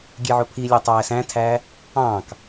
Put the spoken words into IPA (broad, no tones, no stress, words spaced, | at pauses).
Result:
ɡʲeʕopʰilʲæ tˤæːsæ̃tʰæː | ɑ̃ːk